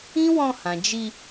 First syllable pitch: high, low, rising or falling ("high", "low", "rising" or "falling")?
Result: high